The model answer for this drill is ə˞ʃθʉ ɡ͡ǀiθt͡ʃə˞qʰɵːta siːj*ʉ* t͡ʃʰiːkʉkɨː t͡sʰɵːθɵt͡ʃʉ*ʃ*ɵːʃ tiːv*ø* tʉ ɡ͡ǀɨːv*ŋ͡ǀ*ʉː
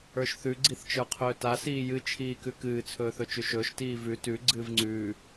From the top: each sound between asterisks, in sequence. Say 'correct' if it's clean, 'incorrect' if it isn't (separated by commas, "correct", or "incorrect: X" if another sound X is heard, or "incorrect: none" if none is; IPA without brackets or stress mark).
incorrect: ɨ, correct, incorrect: ʉ, correct